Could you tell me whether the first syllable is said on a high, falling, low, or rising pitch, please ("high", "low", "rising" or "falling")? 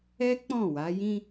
high